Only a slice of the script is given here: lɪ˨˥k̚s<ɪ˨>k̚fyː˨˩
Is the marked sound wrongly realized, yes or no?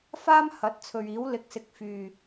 yes